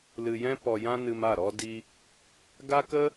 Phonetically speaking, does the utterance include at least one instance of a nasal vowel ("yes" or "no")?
yes